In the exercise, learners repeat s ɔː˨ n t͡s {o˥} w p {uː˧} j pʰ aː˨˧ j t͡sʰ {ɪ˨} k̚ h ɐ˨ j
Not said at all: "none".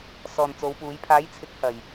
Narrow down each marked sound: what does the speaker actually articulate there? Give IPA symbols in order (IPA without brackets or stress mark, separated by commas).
o˨˧, uː˨˧, ɪ˨˥